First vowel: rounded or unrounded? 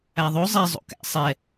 unrounded